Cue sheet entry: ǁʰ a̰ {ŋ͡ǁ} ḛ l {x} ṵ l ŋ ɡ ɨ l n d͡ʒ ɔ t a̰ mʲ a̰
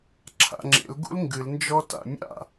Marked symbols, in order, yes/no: yes, no

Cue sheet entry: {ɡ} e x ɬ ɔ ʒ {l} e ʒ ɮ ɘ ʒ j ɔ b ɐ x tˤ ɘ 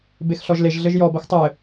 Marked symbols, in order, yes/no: no, yes

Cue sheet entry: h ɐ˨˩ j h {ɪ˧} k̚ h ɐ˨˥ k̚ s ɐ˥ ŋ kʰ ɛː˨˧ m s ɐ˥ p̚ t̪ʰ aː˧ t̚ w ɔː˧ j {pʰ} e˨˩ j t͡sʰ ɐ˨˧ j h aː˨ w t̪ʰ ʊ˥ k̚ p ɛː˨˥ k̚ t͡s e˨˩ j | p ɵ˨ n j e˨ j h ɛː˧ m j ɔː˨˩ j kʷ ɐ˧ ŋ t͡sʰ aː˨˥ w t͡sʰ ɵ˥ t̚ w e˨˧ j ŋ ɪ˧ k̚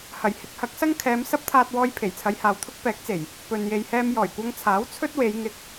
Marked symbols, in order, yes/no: yes, yes

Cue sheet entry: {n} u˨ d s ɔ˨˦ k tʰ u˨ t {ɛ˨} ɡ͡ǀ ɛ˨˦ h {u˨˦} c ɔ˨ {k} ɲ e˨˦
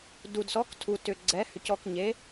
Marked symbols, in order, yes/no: no, no, no, yes

